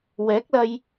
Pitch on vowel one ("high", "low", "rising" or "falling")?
rising